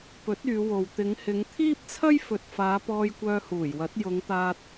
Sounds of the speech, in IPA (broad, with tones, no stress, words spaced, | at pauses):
pɵ˨˥t̚ yː˨˧wo˨w t̪ɪ˨˧ŋhɪ˨˧ŋ t̪ʰiː˥p̚t͡sʰɐ˥j fɵ˨t̚faː˨˧ pɔː˧jkʷœː˧huː˨˩jwɐ˨˥t̚ jʊ˨˧ŋt̪aː˧t̚